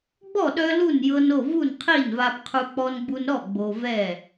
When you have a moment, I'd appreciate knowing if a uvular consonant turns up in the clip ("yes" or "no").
yes